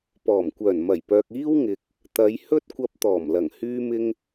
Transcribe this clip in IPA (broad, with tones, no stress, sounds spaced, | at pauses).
p ɔː˨˩ m kʷ œː˨˩ n m ɐ˨˩ j p œː˨ k̚ iː˥ w ŋ ɪ˨ k̚ | t̪ ɐ˨˧ j h ɵ˥ t̚ kʷ ɐ˧ p̚ t̪ ɔː˨˩ m l ɐ˨˩ ŋ h yː˧ m ɪ˧ ŋ